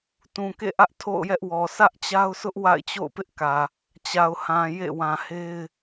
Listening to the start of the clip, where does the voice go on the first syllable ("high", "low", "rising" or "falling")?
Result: low